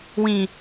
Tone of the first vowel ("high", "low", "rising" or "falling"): low